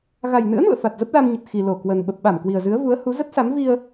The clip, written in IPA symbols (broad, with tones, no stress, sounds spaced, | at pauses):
ɣ a˨˩ j n ɨ̰˧˥ ə̯ n ṵ˧˨ ə̯ f a˨˩ t̚ z ə˦˥ p̚ l a˧ m ɲ ə˨˩ t̚ x i˨˩ l o˧˩ k w ə˨˩ n ɓ ə˨˩ p̚ ɓ a˧˩ m k w i˨˩ ə̯ z ɨ˨˦ ə̯ v u˨˦ ə̯ h u˨˦ z ə˦˥ t̚ s a˨˦ m v i˧ ə̯